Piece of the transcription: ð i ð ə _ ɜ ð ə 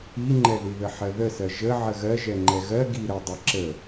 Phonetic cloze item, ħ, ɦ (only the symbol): ħ